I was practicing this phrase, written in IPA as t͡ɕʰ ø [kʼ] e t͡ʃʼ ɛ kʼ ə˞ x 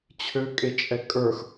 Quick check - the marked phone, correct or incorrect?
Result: correct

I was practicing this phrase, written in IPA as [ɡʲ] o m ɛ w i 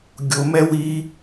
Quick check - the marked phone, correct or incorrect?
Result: correct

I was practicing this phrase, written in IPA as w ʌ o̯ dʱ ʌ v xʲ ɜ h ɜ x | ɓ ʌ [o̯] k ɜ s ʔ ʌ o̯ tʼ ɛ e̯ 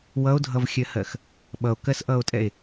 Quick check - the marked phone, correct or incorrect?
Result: correct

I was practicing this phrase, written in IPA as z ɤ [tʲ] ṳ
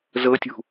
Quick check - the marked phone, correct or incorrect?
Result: correct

